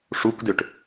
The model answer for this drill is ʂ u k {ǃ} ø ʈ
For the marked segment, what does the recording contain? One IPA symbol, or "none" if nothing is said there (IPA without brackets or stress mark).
d